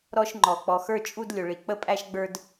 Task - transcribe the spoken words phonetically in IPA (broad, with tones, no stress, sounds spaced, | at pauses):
ɾ ɔ˧ ʃ ŋ͡ǃ ɔ˩ k͡p ɔ˩ x ə˞˧ t͡ʃʼ u˧ d lʲ ʊ˩ ɭ i˩ k͡p ə˧ pʼ æ˧ ʃ ɡ͡b ə˞˧ d